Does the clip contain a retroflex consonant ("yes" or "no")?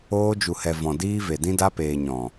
no